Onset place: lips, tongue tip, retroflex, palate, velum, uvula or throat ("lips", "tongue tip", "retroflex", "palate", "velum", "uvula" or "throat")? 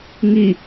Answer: velum